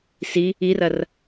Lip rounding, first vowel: unrounded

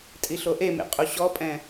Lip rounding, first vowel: unrounded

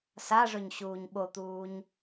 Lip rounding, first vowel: unrounded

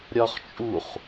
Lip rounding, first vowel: rounded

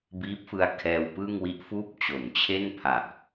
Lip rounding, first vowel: unrounded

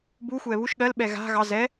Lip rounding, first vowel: rounded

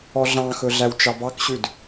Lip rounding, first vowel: rounded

